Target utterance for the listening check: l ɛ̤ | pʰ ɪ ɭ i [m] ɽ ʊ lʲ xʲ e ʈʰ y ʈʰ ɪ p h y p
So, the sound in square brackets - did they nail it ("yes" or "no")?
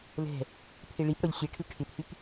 no